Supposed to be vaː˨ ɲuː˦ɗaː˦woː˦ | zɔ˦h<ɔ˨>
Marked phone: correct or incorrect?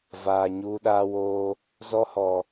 correct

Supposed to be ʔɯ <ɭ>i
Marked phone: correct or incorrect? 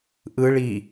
correct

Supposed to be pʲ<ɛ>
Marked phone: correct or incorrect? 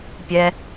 correct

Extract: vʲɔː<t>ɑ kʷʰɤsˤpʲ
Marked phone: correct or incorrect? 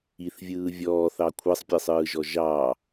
incorrect: θ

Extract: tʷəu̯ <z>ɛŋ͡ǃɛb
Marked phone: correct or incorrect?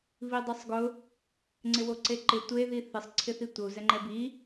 correct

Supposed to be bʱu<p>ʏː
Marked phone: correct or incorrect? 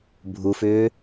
incorrect: f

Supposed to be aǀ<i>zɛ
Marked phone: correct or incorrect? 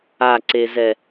incorrect: e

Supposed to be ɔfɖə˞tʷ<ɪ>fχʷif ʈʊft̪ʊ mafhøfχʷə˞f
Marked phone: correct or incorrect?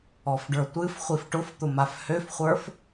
incorrect: ɨ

